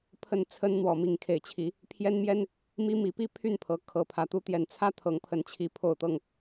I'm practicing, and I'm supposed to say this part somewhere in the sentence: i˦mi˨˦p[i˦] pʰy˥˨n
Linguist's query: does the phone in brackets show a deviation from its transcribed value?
no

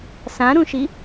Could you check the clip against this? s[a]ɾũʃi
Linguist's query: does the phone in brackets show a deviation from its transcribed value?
yes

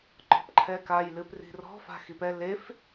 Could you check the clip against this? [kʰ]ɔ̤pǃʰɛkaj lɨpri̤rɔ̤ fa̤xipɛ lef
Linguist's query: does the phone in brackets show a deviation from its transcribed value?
yes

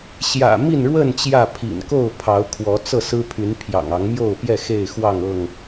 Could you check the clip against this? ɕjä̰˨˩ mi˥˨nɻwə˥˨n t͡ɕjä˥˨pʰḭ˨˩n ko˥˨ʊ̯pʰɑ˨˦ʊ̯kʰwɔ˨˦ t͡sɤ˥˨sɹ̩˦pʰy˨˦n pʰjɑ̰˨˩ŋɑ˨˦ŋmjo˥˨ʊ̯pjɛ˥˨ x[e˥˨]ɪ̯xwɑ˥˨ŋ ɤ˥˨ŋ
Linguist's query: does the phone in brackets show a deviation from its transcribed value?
no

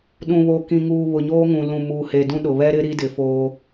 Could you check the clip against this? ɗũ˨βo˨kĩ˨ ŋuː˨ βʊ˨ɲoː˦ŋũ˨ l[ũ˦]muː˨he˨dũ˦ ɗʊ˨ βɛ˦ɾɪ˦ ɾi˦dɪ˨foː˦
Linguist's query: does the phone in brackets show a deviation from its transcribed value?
yes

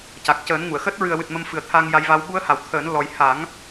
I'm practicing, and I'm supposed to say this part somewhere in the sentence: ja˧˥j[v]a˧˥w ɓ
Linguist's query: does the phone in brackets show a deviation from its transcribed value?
no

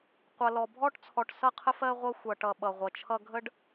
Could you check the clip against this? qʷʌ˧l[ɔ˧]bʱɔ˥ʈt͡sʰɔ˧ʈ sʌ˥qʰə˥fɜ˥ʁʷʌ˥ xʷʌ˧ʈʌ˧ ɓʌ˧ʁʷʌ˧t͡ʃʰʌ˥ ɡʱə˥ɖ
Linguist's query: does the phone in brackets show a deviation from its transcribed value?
no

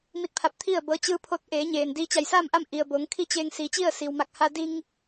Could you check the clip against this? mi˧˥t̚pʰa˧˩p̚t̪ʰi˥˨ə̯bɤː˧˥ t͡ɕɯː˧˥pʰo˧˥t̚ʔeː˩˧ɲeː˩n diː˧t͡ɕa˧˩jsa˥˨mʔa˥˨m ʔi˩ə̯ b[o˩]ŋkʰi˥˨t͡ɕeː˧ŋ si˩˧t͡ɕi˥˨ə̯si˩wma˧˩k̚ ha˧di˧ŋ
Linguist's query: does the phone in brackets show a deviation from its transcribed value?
yes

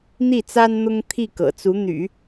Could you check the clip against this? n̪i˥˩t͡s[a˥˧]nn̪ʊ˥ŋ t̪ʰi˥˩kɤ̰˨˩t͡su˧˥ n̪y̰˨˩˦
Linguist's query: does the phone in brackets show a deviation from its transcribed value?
yes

